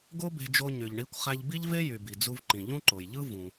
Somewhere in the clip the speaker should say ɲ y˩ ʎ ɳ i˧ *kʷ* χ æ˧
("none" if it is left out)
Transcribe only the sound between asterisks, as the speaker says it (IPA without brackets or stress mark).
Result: kʷ